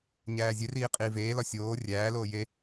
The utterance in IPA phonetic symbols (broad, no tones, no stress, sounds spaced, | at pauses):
ɲ æː zʲ e r iː qʼ iː v eː l ɒ sʲ oː rʲ æː l oː j e